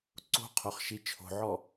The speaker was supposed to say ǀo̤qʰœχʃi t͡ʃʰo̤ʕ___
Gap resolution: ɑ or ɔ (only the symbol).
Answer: ɔ